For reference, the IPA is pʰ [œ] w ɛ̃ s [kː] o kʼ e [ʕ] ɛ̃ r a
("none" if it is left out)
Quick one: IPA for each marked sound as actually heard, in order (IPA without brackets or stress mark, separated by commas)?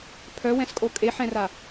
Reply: œ, kʼ, ħ